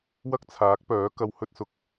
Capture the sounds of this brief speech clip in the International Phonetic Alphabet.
w ɐ˥ k̚ t͡sʰ aː˨˥ k̚ p œː˨˥ k ɐ˧ w h ɵ˥ t̚ s ʊ˧ k̚

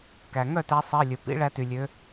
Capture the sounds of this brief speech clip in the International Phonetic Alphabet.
k æ˩ ŋ œ˥˩ t æ˨˦ sˤ i˩˧˩ lʲ ɵ˩ p ḭ˨˦ ɭ æ˨˦ t y˩ lʲ ø˨˦

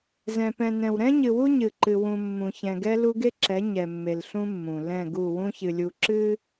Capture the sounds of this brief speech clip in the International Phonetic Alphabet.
z ɛ̃˨ p ɛ̃˨ n ɛ̃˨ w ɾ ɛ̃˦ ɲ ɨ˨ w u˦ ɲ ɨ˨ ǃ ɨ˨ w ũ˨ mː ũ˨ ç ɛ̃˨ ɡ ɛ˦ l u˦ ɡ e˦ ǁ ɛ˨˦ ɲ ɛ˨ mː e˨ l ɬ ũ˦ mː ũ˨ l ɛ̃˦˨ ɡ u˦˨ w ũ˦ ç ɨ˨ lʲ u˨ ǁ ɨ˦

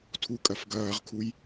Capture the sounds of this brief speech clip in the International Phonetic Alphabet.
tʰ u kʼ ɐ f ɡ ɐː ʁ kʰ u j

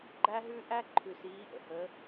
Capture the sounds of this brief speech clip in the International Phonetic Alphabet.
ɡ͡ǃ æ˧ ɦ ʉ˧ ʔ æ˥ ǃʰ ʉ˧ s iː˧˥ ʔ ə̰˩ h əː˧˥

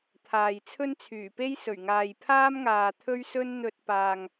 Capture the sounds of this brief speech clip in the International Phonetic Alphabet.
t̪ʰ aː˨ j t͡sʰ ɵ˥ n t͡sʰ yː˨˩ p e˥ j s ɵ˨˩ ɥ ŋ aː˨ j pʰ aː˥ m ŋ aː˨ t̪ʰ ɵ˥ ɥ s ɵ˥ n n̪ ɵ˧ t̚ p aː˨ ŋ

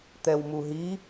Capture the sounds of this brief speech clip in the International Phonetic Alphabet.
t̪ ɛ w m u ɦ i

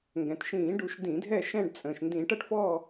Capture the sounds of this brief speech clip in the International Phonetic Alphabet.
ŋ ɡ ɛ̃˩ t ʃ ĩː˧˩˧ ɖ u˧˩˧ ʃ d ĩ˧˩˧ dʱ ɛ˦˨ ʃ ɛ̃˦˨ ɖ t͡sʼ ə̃ː˩ ʃ n d ĩ˧˩˧ ʈ ʌ˦˨ ʈ f ɔː˦˨

